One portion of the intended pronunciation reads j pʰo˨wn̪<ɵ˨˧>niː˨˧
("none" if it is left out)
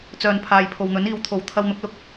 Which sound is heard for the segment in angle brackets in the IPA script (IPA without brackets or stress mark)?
ɵ˨˥